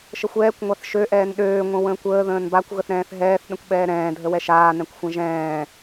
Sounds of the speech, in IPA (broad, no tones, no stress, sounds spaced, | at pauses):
ʃ ə xʷ ɛː kʷ ŋʷ a θ ʃ ø ʔ ɛː n ɗ øː ŋʷ ə̃ w ə̃ː kʷ əː ð ə̃ː n b a kʷ ɣ ə θ ɾ ɛ̃ː θ ɦ ɛː θ ɗ ə̃ kʷ ɓ ɛː ɾ ɛ̃ː dʱ ə w ɛ ʃ aː n ɛ̃ kʷ xʷ ɛ̃ ʒ ɛ̃ː